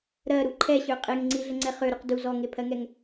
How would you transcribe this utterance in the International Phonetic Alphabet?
ɾ ɜ ɾ u ǃʰ ɛ ɕ ø qʼ e ŋ ŋ͡ǀ i ɮ ə ŋ͡ǀ ɛ χ ø ɾ u q d u z ɔ ŋ e pʰ ɜ ŋ ɛ ŋ

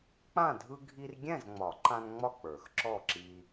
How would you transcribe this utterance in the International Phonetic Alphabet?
k͡p ã˥˨ dʱ ɯ˦ ɡʱ i˦ r ɡʲ ɛ̃˥˨ z ŋ͡m ɒ˨˩˦ ǃ ã˦ n ŋ͡m ɒ˥˨ k͡p ə˞˨˩˦ x ǁ ɔ˥˨ ǁ i˦

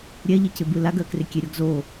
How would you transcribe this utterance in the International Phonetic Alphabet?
ɾʲ ɛ ʎ ɪ c ɪ b ɯ l a ɡ ɜ k r ɪ kʲ e ɾʲ ɔ ɡ z o

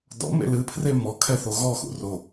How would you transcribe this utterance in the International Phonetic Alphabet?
d ɔ̰ m ḛ l ɨ pʰ r e m ɔ kʰ ɛ θ o ɣ ɔ x ṵ r o

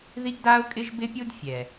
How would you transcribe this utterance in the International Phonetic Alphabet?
ð i˦ ɡ d a˦ ʊ̯ kʼ ɪ˦ ʒ b ɪ˦ pʲ u˦ d fʲ ɛ˨

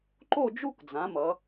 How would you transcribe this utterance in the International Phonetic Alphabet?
ǃ o˥˧ d͡ʒ u˥˧ k d͡z ã˩˧ m ʌ˩˧

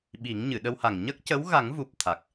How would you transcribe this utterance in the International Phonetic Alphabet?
ɓ i˨˩˦ ŋ ɲ ɨ˨˩˨ ɗ ə˧ w h a˨˩ ŋ ɲ ə˦˥ k̚ c ə˧˥ w ɣ a˨˩˦ ŋ v u˨˩ p̚ t̪ʰ a˨˩ k̚

